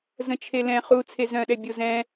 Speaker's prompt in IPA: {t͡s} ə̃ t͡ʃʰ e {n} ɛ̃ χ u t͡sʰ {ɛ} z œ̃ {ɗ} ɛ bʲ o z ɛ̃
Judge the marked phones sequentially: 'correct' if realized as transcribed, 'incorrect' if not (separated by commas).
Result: incorrect, incorrect, incorrect, correct